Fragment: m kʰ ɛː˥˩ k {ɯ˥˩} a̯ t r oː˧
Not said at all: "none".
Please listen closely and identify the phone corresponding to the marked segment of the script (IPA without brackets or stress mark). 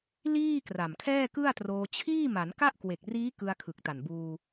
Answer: ɯ˥˩